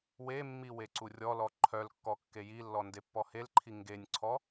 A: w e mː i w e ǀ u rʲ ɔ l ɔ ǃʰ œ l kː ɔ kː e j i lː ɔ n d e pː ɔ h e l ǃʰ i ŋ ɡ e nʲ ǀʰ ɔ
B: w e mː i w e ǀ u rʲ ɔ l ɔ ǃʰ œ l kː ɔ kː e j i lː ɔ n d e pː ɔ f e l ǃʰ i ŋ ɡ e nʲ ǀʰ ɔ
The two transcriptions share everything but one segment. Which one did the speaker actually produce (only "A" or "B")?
A